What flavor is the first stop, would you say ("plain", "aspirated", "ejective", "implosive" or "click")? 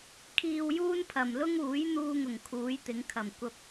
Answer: aspirated